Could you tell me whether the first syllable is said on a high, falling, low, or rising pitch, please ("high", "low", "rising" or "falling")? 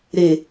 low